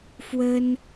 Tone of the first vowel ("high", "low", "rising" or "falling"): high